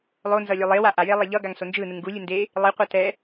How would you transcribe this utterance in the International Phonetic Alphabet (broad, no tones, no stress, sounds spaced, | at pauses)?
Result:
lˠ o n z ʌ lʲ o lˠ e w a ʔ a j e lˠ ɛ ʎ ʌ ɡ a ŋ s o n d͡ʒ ɯ n ɯ ŋ ɡ u lʲ ɯ n d e | lˠ i qʷ ʌ t ɛ